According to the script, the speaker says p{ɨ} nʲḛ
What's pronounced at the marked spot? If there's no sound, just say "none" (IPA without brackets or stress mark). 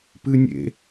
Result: ɨ